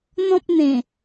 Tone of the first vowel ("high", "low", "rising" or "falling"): high